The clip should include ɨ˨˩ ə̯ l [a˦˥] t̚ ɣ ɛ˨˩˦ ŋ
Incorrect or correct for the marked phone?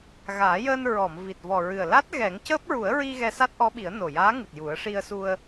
correct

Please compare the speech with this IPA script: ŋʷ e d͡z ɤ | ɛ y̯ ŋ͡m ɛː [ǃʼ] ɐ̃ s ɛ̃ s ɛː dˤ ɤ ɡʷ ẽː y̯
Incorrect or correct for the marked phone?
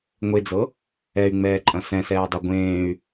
correct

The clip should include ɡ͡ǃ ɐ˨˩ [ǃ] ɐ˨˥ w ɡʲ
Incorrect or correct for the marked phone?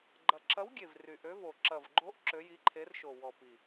incorrect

